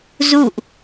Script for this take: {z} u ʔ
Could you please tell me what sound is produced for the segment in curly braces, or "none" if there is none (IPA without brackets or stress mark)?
z